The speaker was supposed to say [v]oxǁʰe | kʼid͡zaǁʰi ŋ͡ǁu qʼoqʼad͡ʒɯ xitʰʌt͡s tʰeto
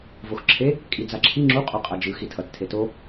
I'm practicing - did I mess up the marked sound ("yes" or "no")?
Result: no